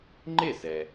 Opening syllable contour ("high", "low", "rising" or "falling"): falling